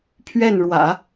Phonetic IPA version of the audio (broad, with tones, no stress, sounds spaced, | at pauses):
pʰ ɥ ɛ˥˩ n ɻ w ä̰˨˩˦